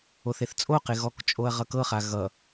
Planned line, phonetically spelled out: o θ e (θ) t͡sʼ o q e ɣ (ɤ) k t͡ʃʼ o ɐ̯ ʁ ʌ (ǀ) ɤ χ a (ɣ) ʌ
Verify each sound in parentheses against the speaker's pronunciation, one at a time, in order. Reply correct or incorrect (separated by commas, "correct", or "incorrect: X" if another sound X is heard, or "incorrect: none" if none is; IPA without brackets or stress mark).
correct, incorrect: ɔ, incorrect: k, correct